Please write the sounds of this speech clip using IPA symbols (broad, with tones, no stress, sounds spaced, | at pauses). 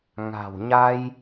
ŋ a̤˨˩ w ɲ a˧ j